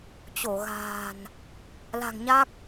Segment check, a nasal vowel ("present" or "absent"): absent